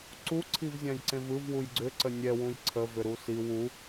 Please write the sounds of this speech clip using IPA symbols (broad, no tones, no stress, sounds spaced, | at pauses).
ǀ u ǀʰ i v zʲ ã j ǀ ẽ v ɯ v w u j ɡ͡ǀ ʏ ǀ ə nʲ ɛ w ũ j ǀʰ ə v ʏ ɾ u s i w u